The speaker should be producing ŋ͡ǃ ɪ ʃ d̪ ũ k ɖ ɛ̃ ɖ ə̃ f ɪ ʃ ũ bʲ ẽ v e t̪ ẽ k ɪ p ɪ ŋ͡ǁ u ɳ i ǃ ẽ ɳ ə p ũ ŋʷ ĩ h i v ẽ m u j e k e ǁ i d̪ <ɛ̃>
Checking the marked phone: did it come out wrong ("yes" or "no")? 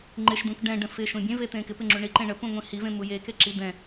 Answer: no